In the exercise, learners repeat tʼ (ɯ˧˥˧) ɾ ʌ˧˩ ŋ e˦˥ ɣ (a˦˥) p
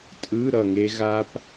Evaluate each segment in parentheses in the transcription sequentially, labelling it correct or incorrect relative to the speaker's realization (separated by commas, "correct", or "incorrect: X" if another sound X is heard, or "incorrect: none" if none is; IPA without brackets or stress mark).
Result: correct, correct